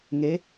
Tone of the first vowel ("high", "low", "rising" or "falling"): rising